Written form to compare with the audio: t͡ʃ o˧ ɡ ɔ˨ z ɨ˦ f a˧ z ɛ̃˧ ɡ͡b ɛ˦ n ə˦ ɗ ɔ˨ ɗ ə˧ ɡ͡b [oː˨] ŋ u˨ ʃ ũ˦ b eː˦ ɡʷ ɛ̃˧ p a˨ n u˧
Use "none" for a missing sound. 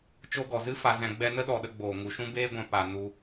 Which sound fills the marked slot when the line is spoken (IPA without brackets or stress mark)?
oː˨